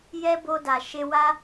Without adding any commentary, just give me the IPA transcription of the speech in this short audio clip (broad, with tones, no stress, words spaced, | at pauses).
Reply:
jɛ˦bo˧da˨ ʃe˧ wa˦